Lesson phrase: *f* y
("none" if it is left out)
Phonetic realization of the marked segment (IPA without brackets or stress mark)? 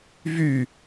v